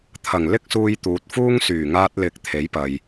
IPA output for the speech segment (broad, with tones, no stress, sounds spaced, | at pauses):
t̪ʰ ɐ˨˩ ŋ l ɪ˥ k̚ s uː˧ j t̪ uː˨ t̚ f uː˥ ŋ s yː˨˩ ŋ aː˧ t̚ l ɪ˨˥ k̚ t̪ʰ e˨˥ j p ɐ˨ j